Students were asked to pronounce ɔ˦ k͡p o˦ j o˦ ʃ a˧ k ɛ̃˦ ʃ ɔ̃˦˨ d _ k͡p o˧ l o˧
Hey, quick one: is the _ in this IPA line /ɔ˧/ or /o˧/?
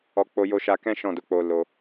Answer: o˧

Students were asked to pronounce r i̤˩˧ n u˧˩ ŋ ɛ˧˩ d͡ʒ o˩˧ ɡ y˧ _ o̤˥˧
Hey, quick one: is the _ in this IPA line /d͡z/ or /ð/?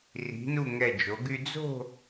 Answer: d͡z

